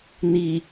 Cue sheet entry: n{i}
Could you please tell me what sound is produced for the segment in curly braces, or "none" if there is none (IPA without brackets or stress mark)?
i